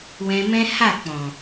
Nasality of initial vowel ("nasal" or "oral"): nasal